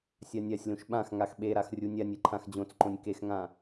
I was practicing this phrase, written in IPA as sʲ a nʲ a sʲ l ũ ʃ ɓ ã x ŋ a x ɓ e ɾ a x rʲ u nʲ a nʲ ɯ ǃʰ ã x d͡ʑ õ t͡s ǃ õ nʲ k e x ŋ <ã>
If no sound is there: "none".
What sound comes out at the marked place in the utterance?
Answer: ã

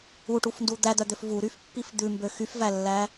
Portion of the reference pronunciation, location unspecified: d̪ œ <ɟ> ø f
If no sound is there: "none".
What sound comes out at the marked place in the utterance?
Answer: d̪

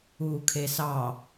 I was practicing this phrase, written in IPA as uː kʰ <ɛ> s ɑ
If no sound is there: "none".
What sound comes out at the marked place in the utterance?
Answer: e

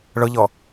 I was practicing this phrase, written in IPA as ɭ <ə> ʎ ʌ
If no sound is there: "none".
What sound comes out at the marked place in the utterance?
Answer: ə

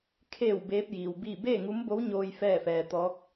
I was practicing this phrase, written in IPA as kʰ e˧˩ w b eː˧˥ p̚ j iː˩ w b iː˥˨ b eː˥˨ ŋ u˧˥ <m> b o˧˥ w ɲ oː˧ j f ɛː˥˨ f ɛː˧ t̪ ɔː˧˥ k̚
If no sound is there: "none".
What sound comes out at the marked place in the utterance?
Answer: m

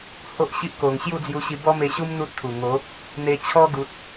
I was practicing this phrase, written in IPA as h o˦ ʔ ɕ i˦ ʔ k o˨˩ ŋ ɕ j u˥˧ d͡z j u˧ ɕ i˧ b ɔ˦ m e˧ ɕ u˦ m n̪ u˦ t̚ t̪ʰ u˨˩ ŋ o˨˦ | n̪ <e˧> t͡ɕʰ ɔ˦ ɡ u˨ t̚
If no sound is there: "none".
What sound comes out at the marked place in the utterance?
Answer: e˧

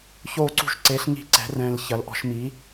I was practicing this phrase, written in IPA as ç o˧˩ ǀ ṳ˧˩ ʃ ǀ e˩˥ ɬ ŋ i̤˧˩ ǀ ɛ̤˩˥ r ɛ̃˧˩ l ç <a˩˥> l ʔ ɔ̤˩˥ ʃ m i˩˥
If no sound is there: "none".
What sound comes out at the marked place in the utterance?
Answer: ɐ˩˥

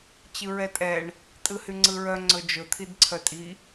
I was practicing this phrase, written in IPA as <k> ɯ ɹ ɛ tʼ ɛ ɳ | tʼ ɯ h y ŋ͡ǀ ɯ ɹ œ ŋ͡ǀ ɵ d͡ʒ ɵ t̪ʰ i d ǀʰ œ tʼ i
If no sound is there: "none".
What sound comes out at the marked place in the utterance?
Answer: t͡ɕ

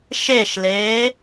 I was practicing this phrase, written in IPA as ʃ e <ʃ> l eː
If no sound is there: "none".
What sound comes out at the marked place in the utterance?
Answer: ʃ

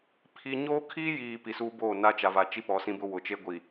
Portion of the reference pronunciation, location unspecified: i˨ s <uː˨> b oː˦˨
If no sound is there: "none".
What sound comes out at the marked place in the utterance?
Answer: uː˦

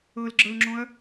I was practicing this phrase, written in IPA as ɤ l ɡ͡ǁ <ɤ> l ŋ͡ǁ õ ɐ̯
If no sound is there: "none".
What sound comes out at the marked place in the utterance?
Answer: ɤ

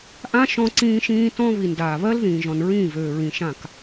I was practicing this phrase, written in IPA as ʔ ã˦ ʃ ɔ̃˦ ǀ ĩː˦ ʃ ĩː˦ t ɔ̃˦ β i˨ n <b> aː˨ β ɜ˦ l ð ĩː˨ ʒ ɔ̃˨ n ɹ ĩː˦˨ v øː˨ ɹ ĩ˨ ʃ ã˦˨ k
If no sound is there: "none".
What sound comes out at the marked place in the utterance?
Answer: d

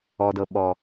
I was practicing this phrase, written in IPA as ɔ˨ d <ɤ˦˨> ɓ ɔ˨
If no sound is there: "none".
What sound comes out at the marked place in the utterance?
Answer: ɤ˨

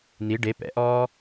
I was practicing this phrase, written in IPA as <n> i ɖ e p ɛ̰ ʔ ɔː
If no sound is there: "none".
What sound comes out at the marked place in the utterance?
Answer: n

